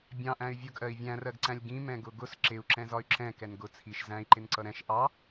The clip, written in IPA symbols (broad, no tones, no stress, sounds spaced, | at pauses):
bʲ ɑ̃ ʔ æ̃ y̯ vʲ ʊ ɡ ʔ ɜ i̯ vʲ æ̃ r ɜ ɡ ǀ æ̃ lʲ ɡ ĩ m ɛ̃ ɡ ʊ ɡ ʊ s ǁ ɪ u̯ ǁ ɛ̃ z ɒ y̯ ǁ ɛ̃ k ɛ n ɡ ʊ t͡sʰ i ʃ z æ̃ i̯ ǃ ɪ n ǀ ʌ ɾ ɛ̃ ʃ ʔ ɑ